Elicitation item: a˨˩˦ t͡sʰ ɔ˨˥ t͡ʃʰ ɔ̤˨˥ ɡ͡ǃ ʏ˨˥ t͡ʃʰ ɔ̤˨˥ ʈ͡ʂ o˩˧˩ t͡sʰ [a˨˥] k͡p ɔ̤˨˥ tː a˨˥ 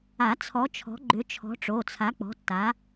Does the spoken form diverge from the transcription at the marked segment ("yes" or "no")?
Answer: no